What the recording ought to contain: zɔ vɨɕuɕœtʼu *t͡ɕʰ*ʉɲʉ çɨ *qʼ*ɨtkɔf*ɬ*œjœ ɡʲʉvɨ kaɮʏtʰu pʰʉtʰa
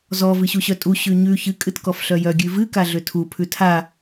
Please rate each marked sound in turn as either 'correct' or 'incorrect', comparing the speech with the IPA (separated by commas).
incorrect, incorrect, correct